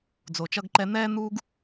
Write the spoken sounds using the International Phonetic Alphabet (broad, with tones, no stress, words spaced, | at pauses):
d͡zo˨t͡ʃʌ˦ɡǃɛ˦ n̪ɛː˥ n̪uː˥ɡ